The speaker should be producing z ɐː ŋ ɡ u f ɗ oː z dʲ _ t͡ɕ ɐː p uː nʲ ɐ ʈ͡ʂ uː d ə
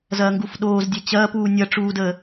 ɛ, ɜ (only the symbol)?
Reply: ɛ